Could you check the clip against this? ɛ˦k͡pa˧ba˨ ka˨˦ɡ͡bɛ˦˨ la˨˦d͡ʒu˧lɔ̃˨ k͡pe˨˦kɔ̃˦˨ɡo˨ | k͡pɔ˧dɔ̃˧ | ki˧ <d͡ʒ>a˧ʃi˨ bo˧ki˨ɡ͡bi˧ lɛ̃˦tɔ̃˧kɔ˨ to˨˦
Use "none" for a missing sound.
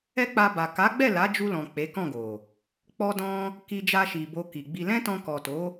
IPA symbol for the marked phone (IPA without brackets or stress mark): d͡ʒ